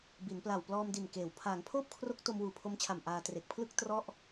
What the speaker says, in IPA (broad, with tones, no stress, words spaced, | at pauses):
bi˩˦npla˨˩w plɔː˧mdi˨˩n keː˩˦w pʰaː˩˦ŋpʰoː˥˩p̚kʰro˦˥k̚ to˧mwuː˨˩pʰo˧mt͡ɕʰa˨˩m ʔaː˧tre˨˩k̚pʰlɯ˥˩k̚ trɔ˥˩ʔ